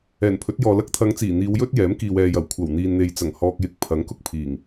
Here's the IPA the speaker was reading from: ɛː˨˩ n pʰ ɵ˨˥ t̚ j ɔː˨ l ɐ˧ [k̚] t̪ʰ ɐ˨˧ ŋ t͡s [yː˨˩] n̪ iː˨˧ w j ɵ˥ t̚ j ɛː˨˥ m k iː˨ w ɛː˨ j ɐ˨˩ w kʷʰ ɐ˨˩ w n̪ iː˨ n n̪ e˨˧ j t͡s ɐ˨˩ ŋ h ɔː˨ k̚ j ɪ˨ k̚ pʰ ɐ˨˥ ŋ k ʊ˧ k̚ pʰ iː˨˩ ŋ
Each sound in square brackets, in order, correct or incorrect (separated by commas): correct, incorrect